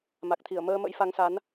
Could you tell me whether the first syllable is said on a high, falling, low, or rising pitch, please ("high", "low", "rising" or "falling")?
low